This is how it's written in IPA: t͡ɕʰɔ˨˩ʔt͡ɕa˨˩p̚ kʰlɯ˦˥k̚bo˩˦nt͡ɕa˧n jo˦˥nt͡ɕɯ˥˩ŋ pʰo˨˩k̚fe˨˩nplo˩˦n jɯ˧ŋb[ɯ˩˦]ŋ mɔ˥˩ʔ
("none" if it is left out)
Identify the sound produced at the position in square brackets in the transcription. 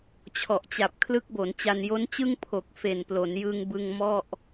ɯ˧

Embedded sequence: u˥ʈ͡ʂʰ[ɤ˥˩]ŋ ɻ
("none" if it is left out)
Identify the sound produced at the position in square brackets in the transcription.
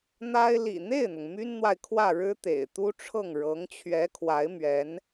ɤ˥˩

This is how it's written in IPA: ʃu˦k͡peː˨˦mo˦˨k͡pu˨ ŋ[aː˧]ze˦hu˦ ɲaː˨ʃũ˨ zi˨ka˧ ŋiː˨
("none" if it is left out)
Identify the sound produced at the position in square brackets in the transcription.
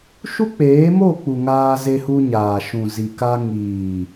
aː˦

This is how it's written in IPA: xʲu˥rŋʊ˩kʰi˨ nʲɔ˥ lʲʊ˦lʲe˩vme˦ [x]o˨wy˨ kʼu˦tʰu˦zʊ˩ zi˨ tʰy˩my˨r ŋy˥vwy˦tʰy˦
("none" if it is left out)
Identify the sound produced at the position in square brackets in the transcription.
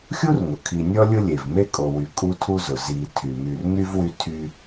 kʼ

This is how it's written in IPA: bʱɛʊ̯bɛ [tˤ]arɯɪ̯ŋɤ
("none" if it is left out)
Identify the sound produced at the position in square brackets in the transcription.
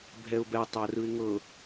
tˤ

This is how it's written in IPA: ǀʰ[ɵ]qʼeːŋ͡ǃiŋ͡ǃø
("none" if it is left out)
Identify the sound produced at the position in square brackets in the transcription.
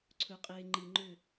ɵ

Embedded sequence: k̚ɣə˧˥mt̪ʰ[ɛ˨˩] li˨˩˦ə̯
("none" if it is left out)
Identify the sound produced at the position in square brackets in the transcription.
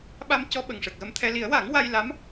ɛ˧˥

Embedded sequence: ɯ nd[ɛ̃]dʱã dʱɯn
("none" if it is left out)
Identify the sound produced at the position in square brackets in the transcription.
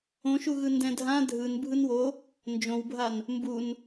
ɛ̃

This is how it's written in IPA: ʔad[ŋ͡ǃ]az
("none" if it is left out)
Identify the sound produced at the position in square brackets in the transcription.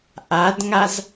ŋ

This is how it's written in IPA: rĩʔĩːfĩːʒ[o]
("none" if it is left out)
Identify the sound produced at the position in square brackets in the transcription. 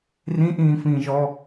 ɔ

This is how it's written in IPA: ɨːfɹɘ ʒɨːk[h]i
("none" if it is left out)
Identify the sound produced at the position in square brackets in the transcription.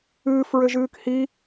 h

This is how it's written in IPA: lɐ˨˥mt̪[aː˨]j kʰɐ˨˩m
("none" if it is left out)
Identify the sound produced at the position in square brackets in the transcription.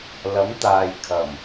aː˨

